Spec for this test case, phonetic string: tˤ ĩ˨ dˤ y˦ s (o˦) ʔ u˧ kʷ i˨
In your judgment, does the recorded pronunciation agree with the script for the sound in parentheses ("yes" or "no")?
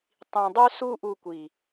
no